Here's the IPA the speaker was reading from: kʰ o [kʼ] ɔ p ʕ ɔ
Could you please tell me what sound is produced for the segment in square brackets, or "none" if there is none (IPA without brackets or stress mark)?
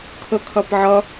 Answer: kʰ